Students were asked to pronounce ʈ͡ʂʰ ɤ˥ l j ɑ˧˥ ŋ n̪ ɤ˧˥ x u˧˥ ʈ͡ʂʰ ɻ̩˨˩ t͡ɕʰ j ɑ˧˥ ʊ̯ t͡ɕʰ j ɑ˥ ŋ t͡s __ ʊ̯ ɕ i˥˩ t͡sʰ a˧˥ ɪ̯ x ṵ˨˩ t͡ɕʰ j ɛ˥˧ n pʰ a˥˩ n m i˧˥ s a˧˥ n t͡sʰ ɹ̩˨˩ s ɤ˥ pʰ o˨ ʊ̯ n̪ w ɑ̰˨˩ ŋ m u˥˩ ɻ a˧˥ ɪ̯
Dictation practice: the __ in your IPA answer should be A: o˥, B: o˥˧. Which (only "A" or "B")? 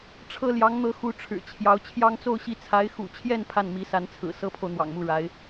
B